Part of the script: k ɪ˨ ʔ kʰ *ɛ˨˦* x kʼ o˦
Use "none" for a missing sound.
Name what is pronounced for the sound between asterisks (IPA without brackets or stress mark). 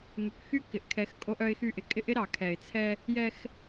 ɛ˨˦